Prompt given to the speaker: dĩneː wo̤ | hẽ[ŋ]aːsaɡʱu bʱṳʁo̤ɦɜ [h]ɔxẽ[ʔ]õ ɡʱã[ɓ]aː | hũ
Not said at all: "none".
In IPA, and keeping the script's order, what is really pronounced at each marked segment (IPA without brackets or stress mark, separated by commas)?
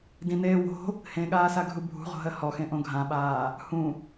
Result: ɠ, h, ʔ, ɓ